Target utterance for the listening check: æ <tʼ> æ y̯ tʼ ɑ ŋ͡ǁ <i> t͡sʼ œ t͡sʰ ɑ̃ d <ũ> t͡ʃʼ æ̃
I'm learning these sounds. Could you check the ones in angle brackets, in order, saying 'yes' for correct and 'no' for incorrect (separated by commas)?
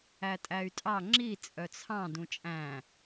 yes, yes, yes